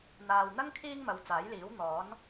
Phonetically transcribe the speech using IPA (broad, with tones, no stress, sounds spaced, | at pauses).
n̪ aː˨ w n̪ ɐ˥ ŋ kʰ iː˥ ŋ m ɐ˨ w t͡s aː˨˥ j l iː˨˥ w n̪ ɔː˨˥ n